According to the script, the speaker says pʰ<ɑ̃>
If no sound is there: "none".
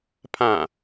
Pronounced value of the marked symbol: ã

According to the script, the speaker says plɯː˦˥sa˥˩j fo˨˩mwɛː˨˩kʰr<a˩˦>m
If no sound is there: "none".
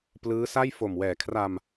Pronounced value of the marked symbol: a˧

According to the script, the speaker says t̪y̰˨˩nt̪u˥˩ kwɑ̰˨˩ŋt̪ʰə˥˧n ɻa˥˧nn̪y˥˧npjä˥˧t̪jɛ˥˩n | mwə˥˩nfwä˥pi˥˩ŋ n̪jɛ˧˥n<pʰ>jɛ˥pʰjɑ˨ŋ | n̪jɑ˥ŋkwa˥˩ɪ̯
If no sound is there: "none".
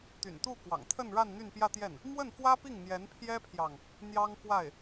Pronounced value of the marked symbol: pʰ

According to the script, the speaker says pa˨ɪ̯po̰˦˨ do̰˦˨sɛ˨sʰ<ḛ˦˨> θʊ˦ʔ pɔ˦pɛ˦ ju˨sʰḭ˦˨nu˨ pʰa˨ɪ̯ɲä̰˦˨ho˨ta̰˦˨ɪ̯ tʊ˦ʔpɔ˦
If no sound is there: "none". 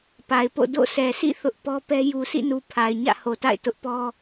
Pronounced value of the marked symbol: ḭ˦˨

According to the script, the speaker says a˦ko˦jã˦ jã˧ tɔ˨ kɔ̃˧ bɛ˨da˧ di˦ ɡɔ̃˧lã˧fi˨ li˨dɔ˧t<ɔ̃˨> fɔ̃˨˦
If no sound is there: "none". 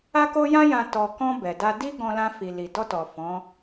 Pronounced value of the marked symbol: ɔ˨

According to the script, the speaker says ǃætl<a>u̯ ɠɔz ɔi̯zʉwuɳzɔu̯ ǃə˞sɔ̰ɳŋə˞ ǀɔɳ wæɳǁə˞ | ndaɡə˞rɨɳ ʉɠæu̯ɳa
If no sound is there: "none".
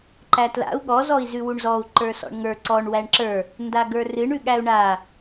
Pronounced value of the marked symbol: a̰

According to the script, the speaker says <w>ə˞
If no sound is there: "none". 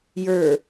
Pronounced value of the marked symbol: j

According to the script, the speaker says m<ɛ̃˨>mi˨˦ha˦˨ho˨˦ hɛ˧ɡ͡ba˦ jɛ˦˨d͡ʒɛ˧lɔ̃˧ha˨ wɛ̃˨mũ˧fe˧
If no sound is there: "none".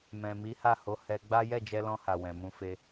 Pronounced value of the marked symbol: ɛ̃˨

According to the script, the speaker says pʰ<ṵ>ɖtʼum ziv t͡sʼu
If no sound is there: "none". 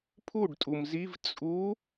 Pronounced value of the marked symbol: u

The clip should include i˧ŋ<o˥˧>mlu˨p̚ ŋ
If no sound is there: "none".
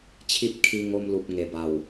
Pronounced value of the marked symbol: o˧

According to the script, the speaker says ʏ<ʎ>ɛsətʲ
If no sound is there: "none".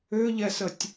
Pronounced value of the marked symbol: ʎ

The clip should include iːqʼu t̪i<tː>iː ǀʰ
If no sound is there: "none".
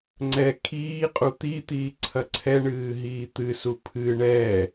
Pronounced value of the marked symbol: t̪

